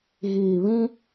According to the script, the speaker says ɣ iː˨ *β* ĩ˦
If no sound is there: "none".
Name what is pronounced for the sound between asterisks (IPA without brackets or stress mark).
β